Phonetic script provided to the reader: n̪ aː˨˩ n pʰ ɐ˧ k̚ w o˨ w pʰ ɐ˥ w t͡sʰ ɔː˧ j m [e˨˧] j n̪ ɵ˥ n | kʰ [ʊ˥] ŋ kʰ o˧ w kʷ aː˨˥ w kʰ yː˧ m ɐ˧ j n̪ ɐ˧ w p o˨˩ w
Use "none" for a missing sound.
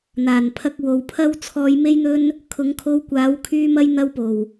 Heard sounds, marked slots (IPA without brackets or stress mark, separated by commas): e˥, ʊ˨˧